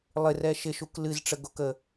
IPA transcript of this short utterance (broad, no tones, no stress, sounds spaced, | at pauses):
lˠ ɪ r ɛ ʃ ɪ ʃ u k l ɨ z ʈ͡ʂ ə ɡ o k ə